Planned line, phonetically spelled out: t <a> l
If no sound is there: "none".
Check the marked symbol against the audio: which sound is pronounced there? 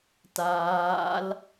aː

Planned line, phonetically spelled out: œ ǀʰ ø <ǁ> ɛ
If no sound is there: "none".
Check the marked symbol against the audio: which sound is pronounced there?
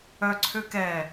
k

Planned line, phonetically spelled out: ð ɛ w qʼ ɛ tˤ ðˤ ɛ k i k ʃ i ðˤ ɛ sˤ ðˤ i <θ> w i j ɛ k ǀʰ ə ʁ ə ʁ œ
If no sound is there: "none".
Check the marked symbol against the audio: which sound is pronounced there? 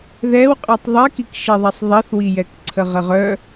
θ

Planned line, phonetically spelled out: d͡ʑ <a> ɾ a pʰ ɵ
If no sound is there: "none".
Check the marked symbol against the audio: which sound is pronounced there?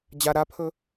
a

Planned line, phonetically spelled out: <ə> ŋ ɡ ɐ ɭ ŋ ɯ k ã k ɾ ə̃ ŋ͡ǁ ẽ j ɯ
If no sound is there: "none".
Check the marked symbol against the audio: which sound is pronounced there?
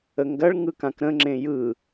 ə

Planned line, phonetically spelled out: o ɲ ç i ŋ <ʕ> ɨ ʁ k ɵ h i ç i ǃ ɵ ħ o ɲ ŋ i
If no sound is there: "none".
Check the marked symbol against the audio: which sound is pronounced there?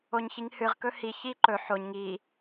h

